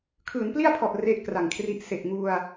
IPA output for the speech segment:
kʰ ɯː˩˦ n p l i˥˩ a̯ pʰ ɔ˨˩ ʔ r e˥˩ ʔ k r a˨˩ ŋ kʰ r i˦˥ ʔ s e˨˩ ʔ ŋ u˧ a̯

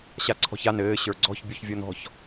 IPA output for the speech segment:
ɕ a ǀʰ ɔ̤ ç a n ɘː ɕ ə˞ ɡ͡ǀ ɔ̤ ç bʲ u ç vʲ ɔ n ɔ̤ ç

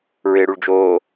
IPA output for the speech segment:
ɹ ɪː ɽ u ɭ d͡ʒ oː

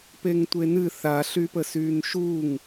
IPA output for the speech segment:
p e ŋ tʷ e n ɨ θ a ɬ y p ə s yː n ʃ u ŋ

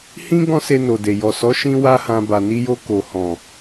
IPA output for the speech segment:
h ĩ˦ ɡ ɔ̃˦ s e˧ n o˨ d e˨ j ɔ˨ s ɔ˨˦ ʃ ĩ˦ w a˦ h ã˧ b a˨ n i˧ j o˧ k o˨ h ɔ̃˨

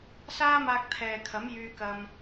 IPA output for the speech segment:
s aː˥ m aː˧ k̚ t̪ʰ ɛː˨ kʰ ɐ˨˥ m j yː˧ k ɐ˧ m

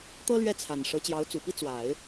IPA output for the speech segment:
t̪ ɤ˥ l ɥ ɛ˥˩ t͡sʰ a˨˩ n ʂ ɤ˧˥ t͡ɕ j ɑ˧˥ ʊ̯ t͡s u˨˩ p i˥ t͡s w a˨˩˦ ɪ̯

